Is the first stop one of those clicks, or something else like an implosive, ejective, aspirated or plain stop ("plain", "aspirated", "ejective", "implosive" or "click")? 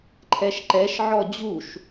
click